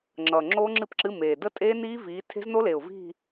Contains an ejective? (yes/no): yes